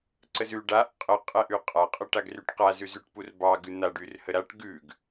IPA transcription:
ǀəzʉ ɖaʔ qʼə qʼɛʔʉqʼa qʼəʈaɡryʈqa zʉzʉʈpurbɑ ɡʉn̪a ɖyrhəɾaʈ ɡʉɡ

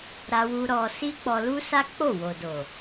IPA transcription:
ɾa˧wu˧ ɾɔ˧ si˦k͡pɔ˧lu˦sa˦ k͡po˦˨wo˨ do˨

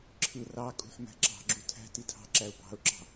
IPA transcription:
ǁʰɯ rɑkʼṳħ mæ̤ǁɑ̤ɡ͡ǁu tʰæ̤ titʰɑ̤ǁæʊ̯ bɑ̤ʊ̯ǁɑ̤

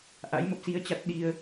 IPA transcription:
ʔa̰˧˥jmə˦˥p̚si˧ə̯t͡ɕa˦˥t̚ ɗi˧ə̯

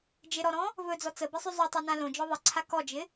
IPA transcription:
d͡ʒɪɾɔɾɔ̃ | vɵd͡zɔ t͡səbɪsˤʉ zˤʉtˤʉnã lõd͡ʒɔ ðˤɪǀʰa kɔd͡ʒɪ

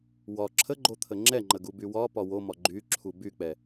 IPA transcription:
wɒ ǁʰəɡ͡ǃo t̪ʰəŋ͡ǁɛŋ͡ǃə ɡubywɒpɒ womɒ ɡ͡ǃy ǁʰubyk͡pɛ

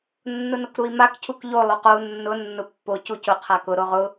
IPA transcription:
nːʊnʊkɾui̯mak cʰukʎo lˠoqou̯ nːʊ nːʊpːo cucʊ qʰakʊ ɾoʁʊ

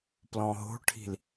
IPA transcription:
plɔ̃ɦo̤ʈʰi̤l

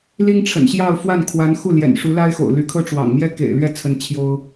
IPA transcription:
li˥ŋʈ͡ʂʰə̰˨˩nɕjɑ˥˧ʊ̯ fwa˥˩nkʰwa˧˥n xu˥˩ljɛ̰˨˩nʂu˧˥ la˥ɪ̯xo̰˨˩ʊ̯ ly˧˥kʰɤ˥ʈ͡ʂwɑ̰˨˩ŋ mjɛ˥kḛ˨˩ɪ̯lɥɛ˥˩ t͡sʰə˧˥n t͡ɕʰjo˥ʊ̯

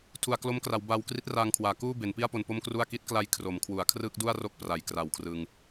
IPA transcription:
tʰu˨˩a̯klo˦˥mkra˩˦wbaː˧w kri˦˥t̚raː˧ŋkʰwaː˩˦ kuː˥˩be˩˦npi˥˩a̯ po˧npo˥˩mkru˥˩a̯ ki˦˥t̚kla˧j kʰro˩˦mkʰwu˩˦a̯kʰrɯ˥˩k̚ du˥˩a̯ro˥˩k̚ pra˨˩jkra˨˩w kʰrɯ˧ŋ

